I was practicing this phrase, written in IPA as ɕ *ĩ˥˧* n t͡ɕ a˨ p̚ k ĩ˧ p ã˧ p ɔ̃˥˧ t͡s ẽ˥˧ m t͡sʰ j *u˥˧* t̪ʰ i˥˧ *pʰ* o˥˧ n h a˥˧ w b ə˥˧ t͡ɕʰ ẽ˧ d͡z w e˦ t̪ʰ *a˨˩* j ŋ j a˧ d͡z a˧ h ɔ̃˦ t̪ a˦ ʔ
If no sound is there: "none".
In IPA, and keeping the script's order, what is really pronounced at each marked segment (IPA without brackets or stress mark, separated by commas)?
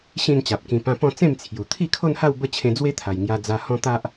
ĩ˥˧, u˨˩, kʰ, a˨˩